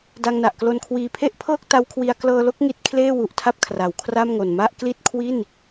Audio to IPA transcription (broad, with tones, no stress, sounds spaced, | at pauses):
d a˧ ŋ n a˨˩ ʔ k l o˧ n kʰ w iː˨˩ pʰ e˥˩ ʔ pʰ ɤː˥˩ k̚ t a˦˥ w kʰ w i˧ a̯ k l ɤː˧ l o˥˩ k̚ ŋ i˦˥ t̚ kʰ l eː˥˩ w u˨˩ ʔ tʰ a˥˩ p̚ kʰ r a˩˦ w kʰ r aː˥˩ m ŋ o˨˩ n m a˥˩ ʔ k l i˥˩ t̚ kʰ w i˥˩ n